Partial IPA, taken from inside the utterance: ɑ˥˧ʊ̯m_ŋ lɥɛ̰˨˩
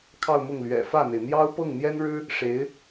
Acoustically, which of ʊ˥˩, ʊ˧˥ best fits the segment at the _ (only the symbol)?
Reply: ʊ˥˩